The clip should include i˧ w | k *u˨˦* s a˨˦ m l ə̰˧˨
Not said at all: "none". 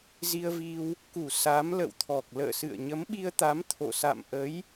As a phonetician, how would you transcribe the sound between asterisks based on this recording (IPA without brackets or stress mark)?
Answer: u˧˩